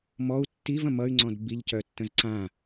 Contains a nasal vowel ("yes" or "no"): yes